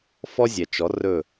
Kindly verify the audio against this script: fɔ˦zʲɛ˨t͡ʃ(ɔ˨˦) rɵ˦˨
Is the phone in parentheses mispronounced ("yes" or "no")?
no